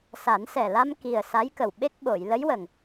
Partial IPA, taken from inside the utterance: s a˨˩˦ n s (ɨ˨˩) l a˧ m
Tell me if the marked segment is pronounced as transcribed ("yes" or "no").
no